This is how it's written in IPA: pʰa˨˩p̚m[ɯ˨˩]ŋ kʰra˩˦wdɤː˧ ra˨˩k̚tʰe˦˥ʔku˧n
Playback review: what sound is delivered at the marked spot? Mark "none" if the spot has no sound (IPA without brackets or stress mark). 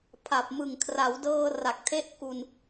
ɯ˨˩